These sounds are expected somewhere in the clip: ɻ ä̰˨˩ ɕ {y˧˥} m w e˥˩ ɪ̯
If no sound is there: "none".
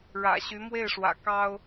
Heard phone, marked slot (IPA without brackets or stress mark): y˧˥